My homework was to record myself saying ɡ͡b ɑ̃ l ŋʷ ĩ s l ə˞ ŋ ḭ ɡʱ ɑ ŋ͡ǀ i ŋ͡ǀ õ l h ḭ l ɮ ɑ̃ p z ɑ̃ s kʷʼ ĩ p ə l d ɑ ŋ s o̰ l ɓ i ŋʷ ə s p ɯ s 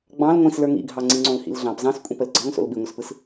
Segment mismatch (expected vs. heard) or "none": d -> ɡ͡ǀ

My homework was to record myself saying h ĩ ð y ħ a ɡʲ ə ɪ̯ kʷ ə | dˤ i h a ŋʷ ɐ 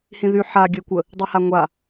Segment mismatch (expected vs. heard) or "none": ɐ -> a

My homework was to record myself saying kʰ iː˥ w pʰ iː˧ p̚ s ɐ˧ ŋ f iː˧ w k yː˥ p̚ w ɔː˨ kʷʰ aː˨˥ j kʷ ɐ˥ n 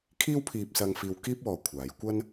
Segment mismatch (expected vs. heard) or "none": yː˥ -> iː˥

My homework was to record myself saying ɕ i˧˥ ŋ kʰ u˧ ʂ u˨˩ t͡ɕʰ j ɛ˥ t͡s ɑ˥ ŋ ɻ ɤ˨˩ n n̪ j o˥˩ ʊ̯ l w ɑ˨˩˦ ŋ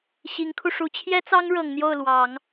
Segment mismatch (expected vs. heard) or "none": n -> ŋ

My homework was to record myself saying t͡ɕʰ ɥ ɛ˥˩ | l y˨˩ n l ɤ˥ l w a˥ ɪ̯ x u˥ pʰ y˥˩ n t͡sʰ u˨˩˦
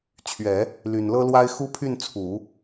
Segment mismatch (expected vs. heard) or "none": ɛ˥˩ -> ɛ˨˩˦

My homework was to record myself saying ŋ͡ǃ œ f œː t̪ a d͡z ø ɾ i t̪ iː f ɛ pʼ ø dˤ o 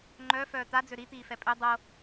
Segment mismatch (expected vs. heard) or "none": none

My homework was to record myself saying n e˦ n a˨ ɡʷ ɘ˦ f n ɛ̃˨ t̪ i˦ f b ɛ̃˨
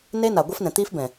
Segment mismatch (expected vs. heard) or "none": none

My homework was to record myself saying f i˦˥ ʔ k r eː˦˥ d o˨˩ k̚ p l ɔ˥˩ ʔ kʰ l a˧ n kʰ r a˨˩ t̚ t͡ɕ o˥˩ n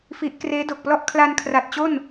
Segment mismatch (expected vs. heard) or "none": none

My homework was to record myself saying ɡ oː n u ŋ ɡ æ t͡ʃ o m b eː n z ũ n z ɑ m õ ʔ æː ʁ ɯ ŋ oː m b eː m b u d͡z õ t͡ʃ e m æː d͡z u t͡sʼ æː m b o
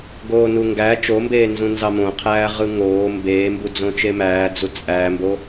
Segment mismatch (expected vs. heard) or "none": ʔ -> qʰ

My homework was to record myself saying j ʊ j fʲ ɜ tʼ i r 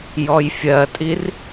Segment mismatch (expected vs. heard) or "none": ʊ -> ɔ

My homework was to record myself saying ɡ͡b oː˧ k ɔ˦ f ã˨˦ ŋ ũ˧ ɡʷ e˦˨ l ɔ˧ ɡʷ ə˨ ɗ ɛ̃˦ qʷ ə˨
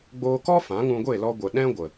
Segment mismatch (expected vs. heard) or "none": qʷ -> ɡʷ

